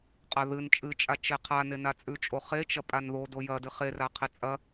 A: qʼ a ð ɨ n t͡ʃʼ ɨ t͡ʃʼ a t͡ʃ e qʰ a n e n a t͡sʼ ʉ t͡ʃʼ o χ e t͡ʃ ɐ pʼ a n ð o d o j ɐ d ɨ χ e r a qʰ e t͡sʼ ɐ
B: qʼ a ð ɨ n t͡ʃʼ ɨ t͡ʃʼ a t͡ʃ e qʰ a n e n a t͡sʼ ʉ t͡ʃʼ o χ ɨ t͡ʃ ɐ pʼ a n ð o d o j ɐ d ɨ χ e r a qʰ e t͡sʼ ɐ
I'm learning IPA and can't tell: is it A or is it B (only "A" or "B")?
A